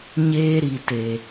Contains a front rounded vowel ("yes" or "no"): no